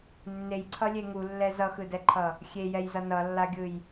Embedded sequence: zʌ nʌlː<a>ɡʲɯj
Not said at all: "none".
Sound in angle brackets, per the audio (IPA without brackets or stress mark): a